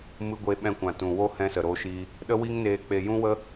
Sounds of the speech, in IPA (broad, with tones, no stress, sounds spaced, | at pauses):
m ɨ˧ ɡʷ e˧ ɓ ɛ̃˧ kʷ ã˨ t ũ˨ w o˦ h ɛ̃˦ s ə˨ ɾ o˦ ʃ i˦ | ɗ ə˦ w i˦ ŋ n eː˧ k͡p e˧ j ũ˦ w ə˦